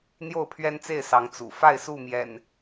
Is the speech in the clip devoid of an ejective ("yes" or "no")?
yes